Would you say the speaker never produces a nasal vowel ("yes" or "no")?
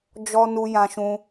no